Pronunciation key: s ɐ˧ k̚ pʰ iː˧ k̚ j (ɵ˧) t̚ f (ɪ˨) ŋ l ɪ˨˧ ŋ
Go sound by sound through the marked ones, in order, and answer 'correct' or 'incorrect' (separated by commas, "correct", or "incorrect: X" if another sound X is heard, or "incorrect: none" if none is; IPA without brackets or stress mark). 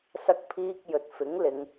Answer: incorrect: ɵ˨, incorrect: ɪ˨˥